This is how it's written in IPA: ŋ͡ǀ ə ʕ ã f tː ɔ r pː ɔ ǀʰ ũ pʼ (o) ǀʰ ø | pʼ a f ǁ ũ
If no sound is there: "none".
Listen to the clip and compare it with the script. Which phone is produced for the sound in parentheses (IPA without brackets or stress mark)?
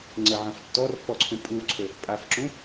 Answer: u